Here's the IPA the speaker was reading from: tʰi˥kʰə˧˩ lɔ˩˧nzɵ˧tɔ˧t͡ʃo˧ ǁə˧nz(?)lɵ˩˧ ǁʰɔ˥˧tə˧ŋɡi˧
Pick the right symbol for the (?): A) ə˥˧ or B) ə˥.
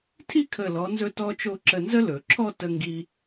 B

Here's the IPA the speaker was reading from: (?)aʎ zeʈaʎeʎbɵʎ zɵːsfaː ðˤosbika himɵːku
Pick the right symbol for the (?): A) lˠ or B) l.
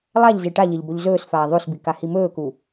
A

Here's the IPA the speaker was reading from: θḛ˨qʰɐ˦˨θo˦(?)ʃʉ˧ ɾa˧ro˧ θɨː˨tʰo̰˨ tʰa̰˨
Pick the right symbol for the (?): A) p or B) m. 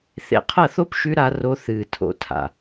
A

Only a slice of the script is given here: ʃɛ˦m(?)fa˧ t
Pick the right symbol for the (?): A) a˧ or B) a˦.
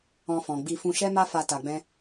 B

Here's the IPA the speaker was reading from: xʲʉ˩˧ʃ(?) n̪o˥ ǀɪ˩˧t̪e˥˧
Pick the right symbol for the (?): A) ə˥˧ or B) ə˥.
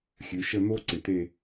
A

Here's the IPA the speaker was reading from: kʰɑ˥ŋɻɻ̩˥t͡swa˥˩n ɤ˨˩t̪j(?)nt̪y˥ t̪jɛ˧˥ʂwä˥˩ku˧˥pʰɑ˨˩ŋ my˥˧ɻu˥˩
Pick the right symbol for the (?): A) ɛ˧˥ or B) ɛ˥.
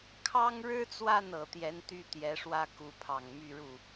A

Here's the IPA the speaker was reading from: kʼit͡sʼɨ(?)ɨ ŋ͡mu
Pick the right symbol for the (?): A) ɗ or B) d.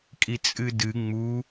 B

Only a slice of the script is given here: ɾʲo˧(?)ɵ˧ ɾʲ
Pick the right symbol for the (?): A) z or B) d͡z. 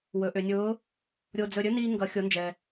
B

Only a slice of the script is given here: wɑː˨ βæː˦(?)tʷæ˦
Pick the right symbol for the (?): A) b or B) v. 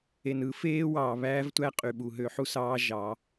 B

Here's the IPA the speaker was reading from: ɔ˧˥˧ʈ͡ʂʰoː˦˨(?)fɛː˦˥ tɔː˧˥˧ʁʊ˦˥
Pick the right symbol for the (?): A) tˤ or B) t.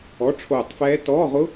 A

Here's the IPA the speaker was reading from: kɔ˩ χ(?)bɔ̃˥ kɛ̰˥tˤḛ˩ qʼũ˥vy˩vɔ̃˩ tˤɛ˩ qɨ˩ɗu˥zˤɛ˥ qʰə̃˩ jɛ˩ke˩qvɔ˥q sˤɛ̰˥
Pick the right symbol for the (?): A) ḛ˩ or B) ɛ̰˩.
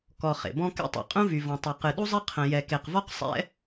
A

